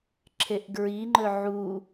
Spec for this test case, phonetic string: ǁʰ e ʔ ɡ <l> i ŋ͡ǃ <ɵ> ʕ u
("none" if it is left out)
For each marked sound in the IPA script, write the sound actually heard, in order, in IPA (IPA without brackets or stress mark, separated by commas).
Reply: ɹ, ɵ